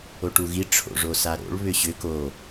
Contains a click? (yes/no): no